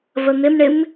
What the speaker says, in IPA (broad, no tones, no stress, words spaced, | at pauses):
vən̪ɪmɳɪm